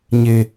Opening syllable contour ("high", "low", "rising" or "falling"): low